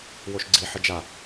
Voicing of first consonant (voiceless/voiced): voiced